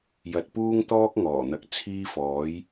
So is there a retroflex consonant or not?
no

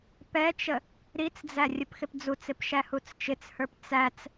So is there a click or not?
no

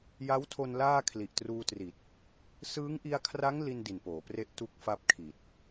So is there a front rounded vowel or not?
no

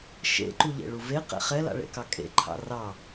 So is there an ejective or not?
yes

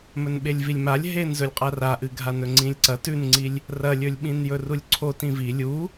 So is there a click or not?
yes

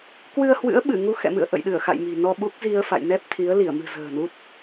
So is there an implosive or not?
yes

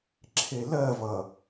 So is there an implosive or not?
no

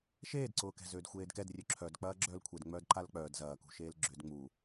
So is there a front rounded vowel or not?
yes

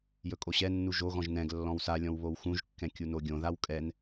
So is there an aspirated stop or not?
no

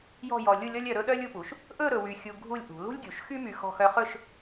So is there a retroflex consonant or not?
no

